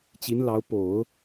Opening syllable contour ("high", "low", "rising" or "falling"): rising